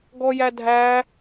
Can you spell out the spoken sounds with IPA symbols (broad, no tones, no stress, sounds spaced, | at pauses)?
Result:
ɡ ɔ j æ dʱ æ